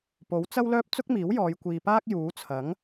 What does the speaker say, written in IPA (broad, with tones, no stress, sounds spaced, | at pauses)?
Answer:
p o˨˥ w t͡s ɐ˥ w l œː˥ p̚ t͡s ʊ˥ k̚ m iː˨˥ w j ɔː˨˧ j kʷ iː˨ p aː˥ k̚ j uː˨˥ t͡sʰ ɐ˨˥ ŋ